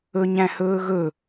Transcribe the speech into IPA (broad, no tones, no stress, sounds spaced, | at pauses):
ɵ ɲ æ̃ h ɵː ɣ ɵ